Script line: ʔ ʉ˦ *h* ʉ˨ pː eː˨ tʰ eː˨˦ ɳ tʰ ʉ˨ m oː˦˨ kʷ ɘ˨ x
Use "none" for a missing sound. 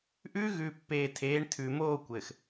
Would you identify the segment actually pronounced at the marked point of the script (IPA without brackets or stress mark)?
ɣ